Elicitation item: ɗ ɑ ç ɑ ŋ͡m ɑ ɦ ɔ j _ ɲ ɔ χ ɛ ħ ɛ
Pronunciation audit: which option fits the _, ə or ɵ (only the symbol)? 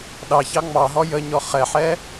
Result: ə